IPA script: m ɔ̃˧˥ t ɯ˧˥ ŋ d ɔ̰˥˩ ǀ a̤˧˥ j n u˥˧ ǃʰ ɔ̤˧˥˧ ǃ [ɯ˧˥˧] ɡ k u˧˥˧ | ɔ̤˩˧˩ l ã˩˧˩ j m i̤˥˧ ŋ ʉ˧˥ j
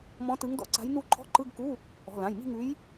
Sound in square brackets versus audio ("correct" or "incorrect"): correct